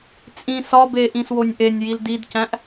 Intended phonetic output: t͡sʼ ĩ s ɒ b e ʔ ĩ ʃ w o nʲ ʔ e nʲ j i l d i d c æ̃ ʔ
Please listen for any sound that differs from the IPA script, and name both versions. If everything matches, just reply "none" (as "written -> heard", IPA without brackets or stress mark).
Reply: ʃ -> s